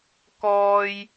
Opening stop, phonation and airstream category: plain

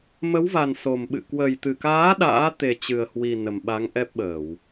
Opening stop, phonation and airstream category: implosive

